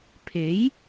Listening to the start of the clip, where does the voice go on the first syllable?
rising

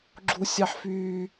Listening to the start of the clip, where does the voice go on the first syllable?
high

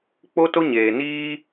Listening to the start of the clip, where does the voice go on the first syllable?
high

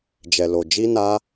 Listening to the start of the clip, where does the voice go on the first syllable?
low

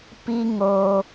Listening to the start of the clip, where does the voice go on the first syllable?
high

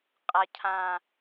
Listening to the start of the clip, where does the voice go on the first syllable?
low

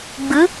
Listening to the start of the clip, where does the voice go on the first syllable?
rising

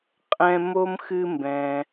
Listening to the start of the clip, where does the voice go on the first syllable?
high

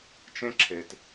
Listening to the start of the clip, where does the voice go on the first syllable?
high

